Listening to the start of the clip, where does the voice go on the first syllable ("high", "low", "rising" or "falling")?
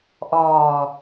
low